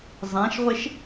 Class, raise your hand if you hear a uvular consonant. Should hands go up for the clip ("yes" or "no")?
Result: yes